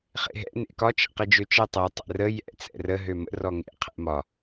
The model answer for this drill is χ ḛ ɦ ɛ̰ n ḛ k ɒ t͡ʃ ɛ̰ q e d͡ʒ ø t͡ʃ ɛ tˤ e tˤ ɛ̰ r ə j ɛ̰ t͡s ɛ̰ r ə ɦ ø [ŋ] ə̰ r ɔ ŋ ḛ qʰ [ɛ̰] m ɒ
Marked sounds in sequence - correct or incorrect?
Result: incorrect: m, correct

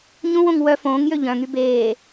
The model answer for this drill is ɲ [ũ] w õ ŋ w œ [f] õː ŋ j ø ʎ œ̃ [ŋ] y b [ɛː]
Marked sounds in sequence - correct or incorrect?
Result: correct, correct, correct, incorrect: eː

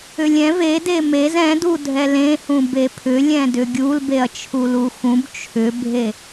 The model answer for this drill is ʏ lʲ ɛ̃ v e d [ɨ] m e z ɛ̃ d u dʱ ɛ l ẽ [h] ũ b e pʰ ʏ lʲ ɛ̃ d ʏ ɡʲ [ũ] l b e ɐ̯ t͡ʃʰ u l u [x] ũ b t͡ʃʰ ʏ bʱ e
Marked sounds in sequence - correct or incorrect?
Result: incorrect: e, correct, incorrect: u, correct

